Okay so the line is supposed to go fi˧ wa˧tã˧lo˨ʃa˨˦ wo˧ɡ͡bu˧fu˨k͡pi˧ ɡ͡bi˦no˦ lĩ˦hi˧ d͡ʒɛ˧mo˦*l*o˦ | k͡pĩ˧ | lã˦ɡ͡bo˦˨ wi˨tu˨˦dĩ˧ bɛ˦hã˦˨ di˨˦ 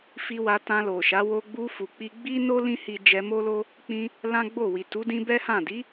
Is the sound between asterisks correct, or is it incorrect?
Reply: correct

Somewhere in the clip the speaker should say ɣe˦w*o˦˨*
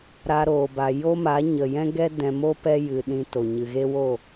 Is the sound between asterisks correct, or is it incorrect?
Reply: correct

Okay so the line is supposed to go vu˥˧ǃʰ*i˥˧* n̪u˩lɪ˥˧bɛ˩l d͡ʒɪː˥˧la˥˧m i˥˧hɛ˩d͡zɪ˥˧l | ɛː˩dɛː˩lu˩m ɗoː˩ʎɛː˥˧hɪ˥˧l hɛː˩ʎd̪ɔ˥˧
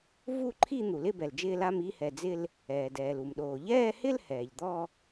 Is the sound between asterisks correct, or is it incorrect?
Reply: correct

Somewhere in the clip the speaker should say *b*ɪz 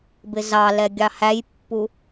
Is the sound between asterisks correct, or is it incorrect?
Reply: correct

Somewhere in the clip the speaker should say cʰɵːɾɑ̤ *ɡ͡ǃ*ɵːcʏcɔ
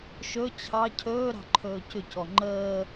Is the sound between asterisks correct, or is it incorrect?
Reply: incorrect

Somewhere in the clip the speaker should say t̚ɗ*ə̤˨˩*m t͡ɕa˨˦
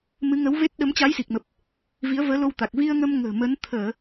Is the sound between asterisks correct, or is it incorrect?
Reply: incorrect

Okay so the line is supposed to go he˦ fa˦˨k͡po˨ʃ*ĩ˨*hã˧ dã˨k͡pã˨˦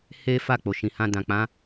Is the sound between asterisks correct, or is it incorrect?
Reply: correct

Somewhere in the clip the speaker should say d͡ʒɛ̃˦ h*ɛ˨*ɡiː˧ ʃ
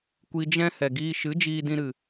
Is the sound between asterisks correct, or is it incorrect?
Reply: correct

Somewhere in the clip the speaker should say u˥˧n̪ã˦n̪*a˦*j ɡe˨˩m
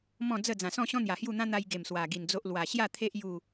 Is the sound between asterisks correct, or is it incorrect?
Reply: incorrect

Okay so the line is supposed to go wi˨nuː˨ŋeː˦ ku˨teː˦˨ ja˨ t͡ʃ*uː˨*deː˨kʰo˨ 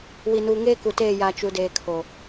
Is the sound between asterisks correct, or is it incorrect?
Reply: incorrect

